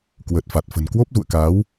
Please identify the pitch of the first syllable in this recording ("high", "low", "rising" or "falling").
low